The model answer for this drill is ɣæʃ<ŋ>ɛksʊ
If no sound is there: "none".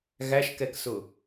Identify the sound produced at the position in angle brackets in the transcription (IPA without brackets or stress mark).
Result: k